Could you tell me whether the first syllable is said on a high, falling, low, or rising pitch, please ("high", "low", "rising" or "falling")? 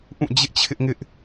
falling